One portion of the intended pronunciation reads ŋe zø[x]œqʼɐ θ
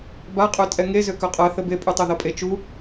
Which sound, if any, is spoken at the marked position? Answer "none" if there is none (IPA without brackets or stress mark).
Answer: k